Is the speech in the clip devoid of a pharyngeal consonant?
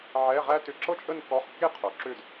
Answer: no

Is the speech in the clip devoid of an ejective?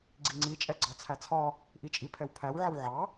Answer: no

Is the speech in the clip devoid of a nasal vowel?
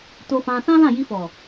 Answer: no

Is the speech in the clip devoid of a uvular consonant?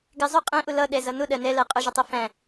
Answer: no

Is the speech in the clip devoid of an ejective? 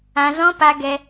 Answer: yes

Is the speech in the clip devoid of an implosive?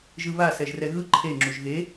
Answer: yes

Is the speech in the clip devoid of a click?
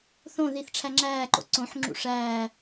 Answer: no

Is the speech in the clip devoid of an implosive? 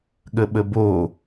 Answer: no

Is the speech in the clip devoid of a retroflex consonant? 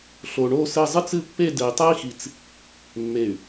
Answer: no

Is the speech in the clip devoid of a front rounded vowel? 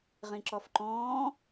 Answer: yes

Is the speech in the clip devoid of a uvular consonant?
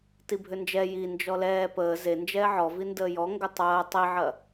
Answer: yes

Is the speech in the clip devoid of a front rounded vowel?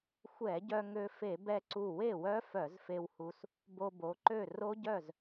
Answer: no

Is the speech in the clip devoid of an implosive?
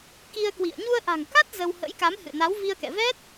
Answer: yes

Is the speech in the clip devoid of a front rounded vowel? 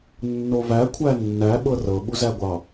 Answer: yes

